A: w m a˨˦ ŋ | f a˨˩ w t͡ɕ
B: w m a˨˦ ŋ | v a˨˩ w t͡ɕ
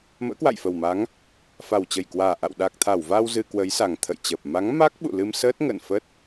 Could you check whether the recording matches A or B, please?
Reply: A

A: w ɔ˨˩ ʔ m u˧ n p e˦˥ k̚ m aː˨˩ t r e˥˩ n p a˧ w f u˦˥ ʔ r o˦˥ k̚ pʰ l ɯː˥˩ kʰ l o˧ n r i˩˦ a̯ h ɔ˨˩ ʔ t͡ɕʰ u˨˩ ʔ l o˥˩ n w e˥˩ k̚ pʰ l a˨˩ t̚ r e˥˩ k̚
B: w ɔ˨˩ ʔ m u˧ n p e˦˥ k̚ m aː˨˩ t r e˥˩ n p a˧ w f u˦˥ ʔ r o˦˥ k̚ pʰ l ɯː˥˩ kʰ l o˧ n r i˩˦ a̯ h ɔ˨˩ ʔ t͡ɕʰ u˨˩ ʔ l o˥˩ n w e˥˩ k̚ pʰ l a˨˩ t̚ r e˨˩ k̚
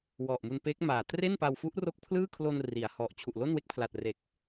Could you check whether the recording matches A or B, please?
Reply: B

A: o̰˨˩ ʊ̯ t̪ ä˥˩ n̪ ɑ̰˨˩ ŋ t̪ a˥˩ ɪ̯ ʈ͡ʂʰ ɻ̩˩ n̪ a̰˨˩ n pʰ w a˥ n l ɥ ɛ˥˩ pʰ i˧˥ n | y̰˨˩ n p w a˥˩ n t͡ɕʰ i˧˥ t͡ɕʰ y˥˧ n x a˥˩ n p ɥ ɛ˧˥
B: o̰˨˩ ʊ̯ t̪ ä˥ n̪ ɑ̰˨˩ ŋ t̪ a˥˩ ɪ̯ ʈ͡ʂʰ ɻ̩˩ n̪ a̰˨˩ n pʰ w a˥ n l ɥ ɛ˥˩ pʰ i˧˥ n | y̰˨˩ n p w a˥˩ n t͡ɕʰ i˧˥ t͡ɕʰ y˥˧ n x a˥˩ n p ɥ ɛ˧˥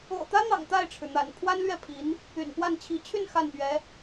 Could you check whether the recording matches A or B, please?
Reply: B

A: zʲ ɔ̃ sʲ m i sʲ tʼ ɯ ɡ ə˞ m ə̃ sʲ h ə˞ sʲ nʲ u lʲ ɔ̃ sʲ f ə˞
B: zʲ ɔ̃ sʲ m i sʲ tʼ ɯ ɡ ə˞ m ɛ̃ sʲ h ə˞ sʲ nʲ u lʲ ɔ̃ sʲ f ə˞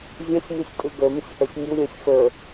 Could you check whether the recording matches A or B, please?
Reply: A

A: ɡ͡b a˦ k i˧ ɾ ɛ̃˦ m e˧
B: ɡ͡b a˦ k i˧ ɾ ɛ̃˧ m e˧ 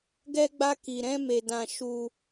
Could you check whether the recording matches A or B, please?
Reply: A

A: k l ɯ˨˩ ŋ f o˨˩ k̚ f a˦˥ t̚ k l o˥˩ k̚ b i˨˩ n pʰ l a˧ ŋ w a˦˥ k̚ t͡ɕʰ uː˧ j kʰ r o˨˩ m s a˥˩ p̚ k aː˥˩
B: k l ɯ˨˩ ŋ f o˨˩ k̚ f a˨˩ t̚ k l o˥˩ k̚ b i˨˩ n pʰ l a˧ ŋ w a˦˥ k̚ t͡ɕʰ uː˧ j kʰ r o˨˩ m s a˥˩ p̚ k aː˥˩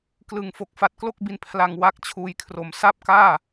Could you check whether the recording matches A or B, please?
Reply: B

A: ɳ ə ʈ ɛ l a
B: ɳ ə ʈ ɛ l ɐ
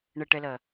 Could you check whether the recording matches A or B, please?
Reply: B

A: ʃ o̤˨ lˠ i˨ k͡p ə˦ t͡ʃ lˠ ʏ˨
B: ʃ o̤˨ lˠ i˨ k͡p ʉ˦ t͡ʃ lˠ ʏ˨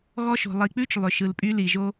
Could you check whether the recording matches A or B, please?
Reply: B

